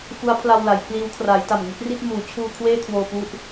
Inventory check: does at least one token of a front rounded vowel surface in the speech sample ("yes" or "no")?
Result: no